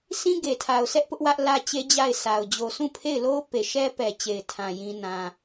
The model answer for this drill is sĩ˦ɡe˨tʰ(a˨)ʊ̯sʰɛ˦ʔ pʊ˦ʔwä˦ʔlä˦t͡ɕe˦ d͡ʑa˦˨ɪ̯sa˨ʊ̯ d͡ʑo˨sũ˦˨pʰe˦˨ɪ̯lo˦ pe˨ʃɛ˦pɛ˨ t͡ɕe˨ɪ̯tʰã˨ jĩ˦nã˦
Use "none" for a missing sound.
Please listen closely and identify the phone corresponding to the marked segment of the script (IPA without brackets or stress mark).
a˨